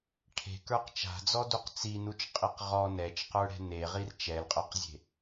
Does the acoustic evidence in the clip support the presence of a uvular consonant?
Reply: yes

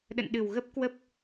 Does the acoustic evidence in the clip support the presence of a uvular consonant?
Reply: no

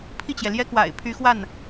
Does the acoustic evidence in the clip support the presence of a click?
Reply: no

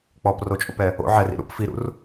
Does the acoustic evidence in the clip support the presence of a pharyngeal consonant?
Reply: yes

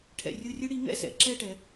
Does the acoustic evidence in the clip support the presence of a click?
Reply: yes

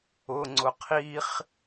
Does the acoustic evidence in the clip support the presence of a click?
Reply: yes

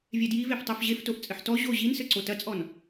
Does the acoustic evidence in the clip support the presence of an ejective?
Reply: yes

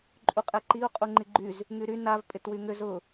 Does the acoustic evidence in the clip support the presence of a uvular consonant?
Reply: yes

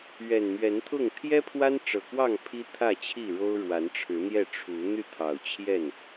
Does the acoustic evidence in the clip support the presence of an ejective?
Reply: no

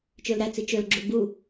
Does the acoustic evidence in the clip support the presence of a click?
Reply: yes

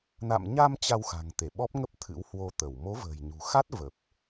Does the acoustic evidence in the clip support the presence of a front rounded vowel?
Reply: no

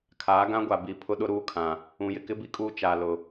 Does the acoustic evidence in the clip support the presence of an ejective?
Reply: yes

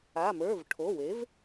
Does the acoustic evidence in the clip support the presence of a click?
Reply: no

